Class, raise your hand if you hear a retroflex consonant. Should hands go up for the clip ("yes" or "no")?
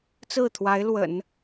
no